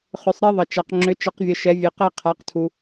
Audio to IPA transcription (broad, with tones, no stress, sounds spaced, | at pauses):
χ ʏ˨˦ sˤ ɾ e˦ ðˤ ə˨ t͡ʃ a˨˦ q ŋ͡ǁ ʏ˨˦ t͡ʃ ə˨˦ q vʲ ə˨ ʃ ɛ˨˦ vʲ e˨ q æ˦ qʰ a˨˦ q tʰ u˨